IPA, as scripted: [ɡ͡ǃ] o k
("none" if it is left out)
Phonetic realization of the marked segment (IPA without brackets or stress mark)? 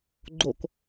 ɡ͡ǃ